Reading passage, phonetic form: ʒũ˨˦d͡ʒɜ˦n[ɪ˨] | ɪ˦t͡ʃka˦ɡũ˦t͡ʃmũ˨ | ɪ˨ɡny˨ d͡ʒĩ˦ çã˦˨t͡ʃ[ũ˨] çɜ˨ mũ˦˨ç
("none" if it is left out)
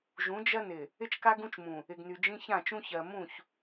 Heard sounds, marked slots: ɪ˨, ũ˦

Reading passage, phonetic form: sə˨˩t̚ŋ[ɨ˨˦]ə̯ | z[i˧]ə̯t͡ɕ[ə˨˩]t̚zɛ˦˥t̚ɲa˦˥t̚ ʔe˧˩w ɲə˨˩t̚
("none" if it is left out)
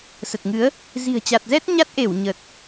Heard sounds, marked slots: ɨ˨˦, i̤˨˩, a˨˩

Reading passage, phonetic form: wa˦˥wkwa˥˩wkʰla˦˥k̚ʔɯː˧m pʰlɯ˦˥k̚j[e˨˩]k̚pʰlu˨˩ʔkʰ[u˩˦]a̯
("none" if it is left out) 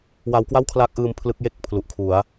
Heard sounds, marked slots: e˥˩, u˩˦

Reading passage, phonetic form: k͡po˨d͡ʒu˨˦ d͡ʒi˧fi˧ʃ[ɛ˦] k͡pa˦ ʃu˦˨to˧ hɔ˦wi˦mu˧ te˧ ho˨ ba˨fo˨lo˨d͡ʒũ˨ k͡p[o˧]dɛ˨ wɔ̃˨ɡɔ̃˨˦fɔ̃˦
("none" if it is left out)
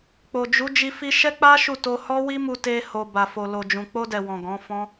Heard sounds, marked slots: ɛ˦, o˧

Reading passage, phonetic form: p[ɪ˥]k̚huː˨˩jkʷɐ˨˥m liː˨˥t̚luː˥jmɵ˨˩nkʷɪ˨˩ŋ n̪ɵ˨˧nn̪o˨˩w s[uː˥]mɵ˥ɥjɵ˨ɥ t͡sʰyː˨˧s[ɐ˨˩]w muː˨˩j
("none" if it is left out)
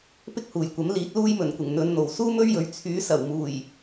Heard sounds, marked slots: ɪ˥, uː˥, ɐ˨˩

